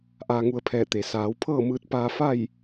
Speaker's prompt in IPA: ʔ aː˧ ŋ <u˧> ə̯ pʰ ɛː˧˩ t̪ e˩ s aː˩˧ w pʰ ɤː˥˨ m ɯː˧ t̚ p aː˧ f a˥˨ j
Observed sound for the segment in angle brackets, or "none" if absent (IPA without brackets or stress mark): u˧